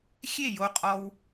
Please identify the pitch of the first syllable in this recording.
falling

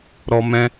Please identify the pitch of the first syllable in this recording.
high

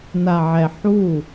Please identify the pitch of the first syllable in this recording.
low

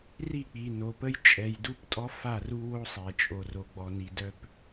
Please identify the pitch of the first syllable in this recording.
falling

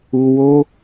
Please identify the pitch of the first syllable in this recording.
low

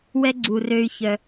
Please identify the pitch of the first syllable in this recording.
high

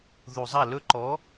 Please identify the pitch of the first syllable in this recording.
low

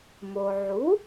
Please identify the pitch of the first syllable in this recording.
low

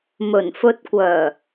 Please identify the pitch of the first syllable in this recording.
low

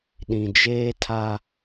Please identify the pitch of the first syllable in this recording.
low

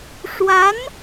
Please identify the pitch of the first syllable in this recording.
rising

